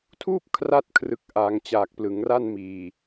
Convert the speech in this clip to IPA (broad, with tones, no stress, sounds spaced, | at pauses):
tʰ uː˥˩ p̚ kʰ r a˥˩ t̚ kʰ r ɯ˨˩ k̚ ʔ aː˩˦ ŋ t͡ɕ aː˨˩ k̚ p l ɯ˩˦ ŋ r a˥˩ n m iː˨˩